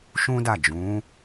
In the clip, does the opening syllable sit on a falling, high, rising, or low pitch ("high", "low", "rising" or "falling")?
high